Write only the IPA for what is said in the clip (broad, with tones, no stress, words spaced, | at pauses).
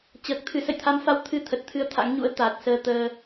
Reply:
t͡ɕəː˨˩k̚t̪ʰɨ˨˦ sə̰˧˨jt̪ʰa˨˦mfa˨˦w t̪ʰɨ˧ t̪ʰə˨˩t̚t̪ʰɨ˧ə̯ t̪ʰa̰˧˥ŋɲṵ˧˥ə̯ t̪a˨˩t̚ səː˧ t̪əː˧